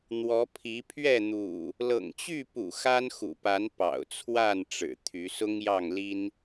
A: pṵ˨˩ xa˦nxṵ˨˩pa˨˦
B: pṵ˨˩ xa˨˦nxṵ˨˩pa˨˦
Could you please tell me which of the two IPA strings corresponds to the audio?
A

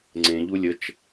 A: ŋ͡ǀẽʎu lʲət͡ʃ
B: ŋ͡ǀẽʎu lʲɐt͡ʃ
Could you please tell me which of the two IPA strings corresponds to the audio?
A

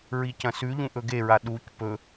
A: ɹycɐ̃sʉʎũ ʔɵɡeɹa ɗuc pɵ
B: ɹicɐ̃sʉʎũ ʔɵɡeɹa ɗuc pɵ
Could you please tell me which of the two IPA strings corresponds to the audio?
B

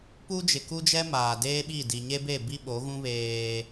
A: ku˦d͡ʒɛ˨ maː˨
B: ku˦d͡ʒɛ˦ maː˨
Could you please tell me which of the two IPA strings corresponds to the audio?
B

